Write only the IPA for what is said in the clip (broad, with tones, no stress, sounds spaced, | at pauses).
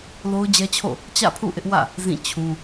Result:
l o˦ ʊ̯ d͡ʑ ɛ˦ t͡ɕʰ o̰˦˨ | t͡ɕ ä̰˦˨ pʰ ṵ˦˨ ʔ ɪ˦ ʔ w ä̰˦˨ | z ĩ˦˨ t͡ɕʰ ũ˦